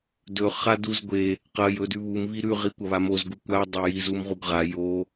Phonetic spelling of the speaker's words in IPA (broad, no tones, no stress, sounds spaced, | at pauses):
d ɵ χ a d u z ɡʷ e | q ɐ j ɵ d ʉ β u m β i ɾ ʉ ʁ i kʷ ɐ β a m o z ɡ u kʷ a dˤ ɵ j i z u m ʁ u ɡ ʁ a j o